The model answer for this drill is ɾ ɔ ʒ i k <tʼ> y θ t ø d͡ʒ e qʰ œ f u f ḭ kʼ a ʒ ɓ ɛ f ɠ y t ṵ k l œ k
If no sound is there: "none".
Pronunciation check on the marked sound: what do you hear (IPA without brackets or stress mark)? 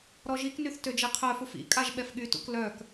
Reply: n